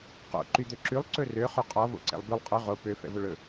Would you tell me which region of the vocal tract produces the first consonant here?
uvula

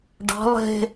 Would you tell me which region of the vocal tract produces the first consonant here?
retroflex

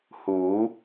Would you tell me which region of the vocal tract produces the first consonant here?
throat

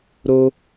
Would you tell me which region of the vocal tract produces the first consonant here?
tongue tip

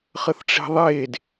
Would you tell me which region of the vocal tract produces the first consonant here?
uvula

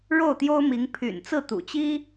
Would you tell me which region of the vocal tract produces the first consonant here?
retroflex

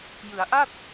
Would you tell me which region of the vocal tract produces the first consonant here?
palate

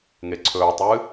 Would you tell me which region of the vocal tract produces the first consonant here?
velum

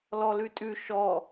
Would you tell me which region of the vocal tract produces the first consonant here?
tongue tip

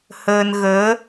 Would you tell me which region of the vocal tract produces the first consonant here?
throat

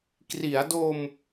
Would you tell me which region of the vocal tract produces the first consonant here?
velum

